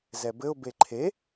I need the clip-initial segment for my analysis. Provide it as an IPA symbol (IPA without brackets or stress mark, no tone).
z